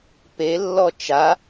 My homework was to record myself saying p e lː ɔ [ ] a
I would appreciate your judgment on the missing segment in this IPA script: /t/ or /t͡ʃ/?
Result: t͡ʃ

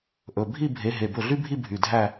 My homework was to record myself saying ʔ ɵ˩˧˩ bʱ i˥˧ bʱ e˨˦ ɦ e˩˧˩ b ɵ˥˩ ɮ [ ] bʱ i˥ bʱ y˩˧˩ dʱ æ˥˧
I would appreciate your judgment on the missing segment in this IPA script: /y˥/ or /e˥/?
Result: y˥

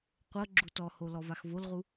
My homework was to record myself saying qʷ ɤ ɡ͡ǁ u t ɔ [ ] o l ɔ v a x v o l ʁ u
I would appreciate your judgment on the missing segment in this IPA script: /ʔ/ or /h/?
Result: h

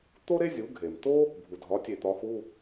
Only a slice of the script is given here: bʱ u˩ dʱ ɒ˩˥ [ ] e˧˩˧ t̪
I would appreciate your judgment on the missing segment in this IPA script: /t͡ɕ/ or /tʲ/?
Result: tʲ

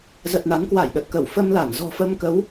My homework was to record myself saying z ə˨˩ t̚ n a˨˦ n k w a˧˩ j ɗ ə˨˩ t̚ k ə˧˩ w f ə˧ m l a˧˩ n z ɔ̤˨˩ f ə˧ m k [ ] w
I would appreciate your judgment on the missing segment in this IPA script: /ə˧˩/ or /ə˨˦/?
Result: ə˨˦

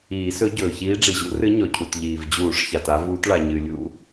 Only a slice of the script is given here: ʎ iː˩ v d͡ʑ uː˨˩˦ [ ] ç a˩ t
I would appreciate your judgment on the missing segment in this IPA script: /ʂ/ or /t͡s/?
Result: ʂ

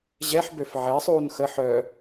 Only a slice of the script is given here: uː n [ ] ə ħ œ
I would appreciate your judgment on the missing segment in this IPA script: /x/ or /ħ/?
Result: x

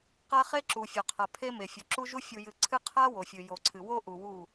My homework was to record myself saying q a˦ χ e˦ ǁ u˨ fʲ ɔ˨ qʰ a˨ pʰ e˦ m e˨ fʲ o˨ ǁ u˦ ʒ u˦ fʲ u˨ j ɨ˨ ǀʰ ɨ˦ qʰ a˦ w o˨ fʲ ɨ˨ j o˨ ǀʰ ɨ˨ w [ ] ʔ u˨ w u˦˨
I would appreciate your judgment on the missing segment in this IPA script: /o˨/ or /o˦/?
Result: o˦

